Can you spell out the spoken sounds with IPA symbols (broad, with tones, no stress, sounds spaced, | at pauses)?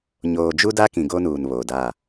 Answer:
ɲ oː˨ d͡ʒ u˦ d a˦ k ĩ˨ ɡ o˦ n uː˨ n β o˨ d a˦˨